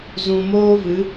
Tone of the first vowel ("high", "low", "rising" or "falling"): low